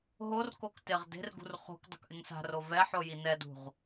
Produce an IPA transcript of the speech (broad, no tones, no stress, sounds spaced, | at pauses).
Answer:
ɦ o r k o k t ɪ ʁ d e̤ r ɡ ṳ r χ o̤ k dˤ o̤ k ʔ ɪ ŋ s a̤ r o v ɛ ħ o j i n ɛ d ṳ ʁ